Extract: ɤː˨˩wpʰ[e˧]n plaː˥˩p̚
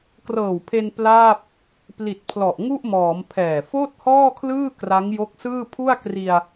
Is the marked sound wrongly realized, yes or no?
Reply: no